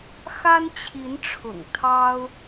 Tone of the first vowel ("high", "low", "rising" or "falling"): high